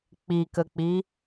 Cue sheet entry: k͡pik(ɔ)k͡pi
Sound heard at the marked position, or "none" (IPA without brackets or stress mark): ə